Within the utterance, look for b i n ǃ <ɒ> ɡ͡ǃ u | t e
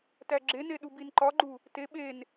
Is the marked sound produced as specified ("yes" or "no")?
yes